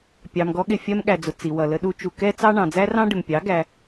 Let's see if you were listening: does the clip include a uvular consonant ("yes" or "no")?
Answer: no